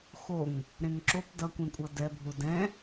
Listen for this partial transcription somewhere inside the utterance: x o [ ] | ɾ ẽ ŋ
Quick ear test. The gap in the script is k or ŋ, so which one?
ŋ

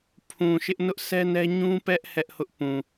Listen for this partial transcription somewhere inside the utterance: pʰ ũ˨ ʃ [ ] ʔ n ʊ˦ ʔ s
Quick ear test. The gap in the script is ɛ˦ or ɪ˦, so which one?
ɪ˦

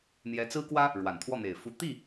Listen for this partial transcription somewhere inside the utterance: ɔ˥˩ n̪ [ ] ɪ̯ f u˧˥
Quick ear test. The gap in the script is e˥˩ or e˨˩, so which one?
e˨˩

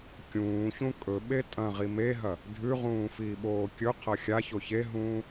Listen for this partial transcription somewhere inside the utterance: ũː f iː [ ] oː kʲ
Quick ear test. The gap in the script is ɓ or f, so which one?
ɓ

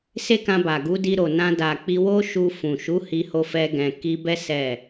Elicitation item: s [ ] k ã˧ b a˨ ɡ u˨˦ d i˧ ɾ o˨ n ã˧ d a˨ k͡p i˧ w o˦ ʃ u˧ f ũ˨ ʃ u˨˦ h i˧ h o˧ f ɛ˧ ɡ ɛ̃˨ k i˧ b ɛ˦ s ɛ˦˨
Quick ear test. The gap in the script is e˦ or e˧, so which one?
e˦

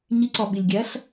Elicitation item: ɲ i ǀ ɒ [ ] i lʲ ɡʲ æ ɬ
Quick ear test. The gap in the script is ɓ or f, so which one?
ɓ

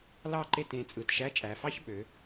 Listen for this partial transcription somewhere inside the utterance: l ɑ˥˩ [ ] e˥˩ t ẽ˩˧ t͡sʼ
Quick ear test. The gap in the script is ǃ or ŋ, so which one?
ǃ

